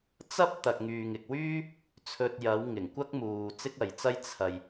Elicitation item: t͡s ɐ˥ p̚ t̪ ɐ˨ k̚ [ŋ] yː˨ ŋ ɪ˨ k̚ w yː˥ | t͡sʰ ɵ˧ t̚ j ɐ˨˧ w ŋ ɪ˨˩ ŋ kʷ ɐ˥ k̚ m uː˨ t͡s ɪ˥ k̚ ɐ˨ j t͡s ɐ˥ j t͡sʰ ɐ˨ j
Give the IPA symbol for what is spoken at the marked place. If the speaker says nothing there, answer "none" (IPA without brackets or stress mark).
ŋ